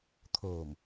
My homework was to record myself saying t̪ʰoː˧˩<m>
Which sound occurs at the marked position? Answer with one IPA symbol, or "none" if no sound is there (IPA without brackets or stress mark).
m